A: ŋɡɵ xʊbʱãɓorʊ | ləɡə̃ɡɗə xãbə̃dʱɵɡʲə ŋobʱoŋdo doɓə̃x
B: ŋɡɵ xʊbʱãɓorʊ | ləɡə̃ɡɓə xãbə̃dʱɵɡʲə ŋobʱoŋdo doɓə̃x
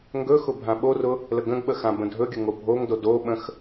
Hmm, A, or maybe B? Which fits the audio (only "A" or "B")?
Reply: B